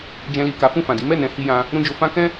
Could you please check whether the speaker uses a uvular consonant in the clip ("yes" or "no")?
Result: no